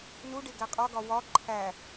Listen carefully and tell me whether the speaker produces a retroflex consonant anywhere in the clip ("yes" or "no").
yes